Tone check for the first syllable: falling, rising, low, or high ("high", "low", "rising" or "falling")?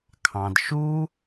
low